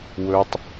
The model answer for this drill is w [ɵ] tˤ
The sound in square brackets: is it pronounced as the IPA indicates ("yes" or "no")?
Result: yes